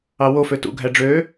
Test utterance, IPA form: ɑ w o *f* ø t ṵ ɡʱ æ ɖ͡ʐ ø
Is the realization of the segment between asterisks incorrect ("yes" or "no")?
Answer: no